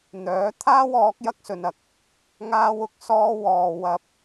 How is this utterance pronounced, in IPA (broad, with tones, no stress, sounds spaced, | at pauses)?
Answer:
n̪ œː˨˥ t̪ʰ aː˥ w ɔː˨˥ k̚ j ɐ˧ k̚ s ɵ˨ n ɐ˨ k̚ | ŋ aː˧ w ʊ˨ k̚ s ɔː˧ w ɔː˨ w ɐ˧ p̚